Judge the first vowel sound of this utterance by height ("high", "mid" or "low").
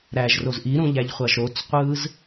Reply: low